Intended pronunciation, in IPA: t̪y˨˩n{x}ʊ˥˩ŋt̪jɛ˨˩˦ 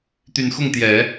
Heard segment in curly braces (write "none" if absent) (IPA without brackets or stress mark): x